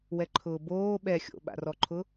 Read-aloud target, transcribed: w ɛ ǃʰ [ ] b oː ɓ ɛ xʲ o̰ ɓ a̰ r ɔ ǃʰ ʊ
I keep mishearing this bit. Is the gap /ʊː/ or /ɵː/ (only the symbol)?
ʊː